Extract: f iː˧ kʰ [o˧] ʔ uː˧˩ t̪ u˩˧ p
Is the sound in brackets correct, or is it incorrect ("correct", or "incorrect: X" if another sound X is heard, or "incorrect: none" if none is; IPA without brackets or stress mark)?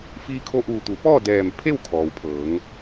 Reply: correct